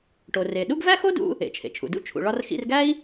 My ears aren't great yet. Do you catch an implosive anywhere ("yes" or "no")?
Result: yes